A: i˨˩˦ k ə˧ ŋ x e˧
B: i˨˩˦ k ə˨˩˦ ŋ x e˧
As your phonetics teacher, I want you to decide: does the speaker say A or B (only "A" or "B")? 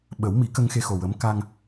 A